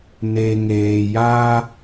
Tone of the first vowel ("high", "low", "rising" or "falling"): low